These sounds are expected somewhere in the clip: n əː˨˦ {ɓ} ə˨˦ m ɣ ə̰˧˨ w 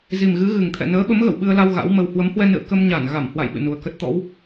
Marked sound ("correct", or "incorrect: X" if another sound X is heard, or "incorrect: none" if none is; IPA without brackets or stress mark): correct